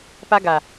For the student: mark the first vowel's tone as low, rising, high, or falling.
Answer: high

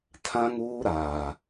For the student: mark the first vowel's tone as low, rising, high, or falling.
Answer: high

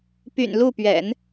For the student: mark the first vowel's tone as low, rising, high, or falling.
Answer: low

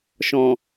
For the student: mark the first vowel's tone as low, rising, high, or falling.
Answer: low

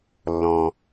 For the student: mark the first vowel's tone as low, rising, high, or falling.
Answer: low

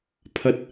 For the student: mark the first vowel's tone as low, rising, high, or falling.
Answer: low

